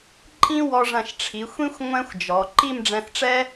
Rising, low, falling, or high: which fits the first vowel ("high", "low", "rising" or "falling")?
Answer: high